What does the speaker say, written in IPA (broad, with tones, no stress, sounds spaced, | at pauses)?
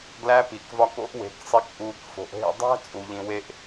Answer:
ɡ l æ˧ p i˨ k v ɒ˧ k o̰˦ ʔ w e̤˨˦ k sˤ i˧ k ʔ uː˧ k f o̤˧ ʔ ɦ ḛ˧ dˤ æ̤˦ t͡sʼ u˧ ʎ ĩ˧ w e˦ ʔ